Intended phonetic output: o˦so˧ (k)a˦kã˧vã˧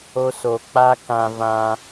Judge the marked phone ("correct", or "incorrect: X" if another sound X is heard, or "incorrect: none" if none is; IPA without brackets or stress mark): incorrect: k͡p